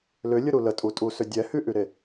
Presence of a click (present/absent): absent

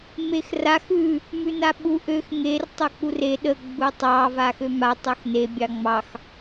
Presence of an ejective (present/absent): absent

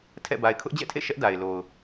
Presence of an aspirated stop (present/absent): present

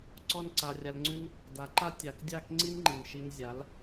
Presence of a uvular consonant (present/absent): absent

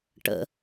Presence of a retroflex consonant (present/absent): present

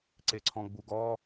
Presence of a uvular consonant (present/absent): absent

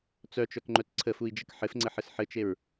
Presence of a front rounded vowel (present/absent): present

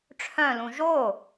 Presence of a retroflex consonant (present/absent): present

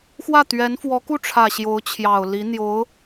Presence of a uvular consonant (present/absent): absent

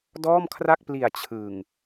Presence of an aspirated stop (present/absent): present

